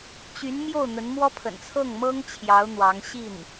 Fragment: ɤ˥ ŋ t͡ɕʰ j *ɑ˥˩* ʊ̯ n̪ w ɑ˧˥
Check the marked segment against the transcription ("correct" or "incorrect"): incorrect